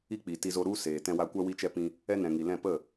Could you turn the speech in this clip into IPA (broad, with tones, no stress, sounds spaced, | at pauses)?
i˦ k͡p i˨ t i˧ z o˧ ɾ u˦ s eː˨ t ɛ̃˧ w a˧ kʷ a˦ w i˦ t͡ʃ ɛ˦ p ĩ˧ | ɛ˦ n ɛ̃˨ ŋ i˨ l ɛ̃˦˨ p ə˦˨